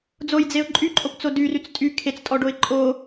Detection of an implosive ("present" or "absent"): absent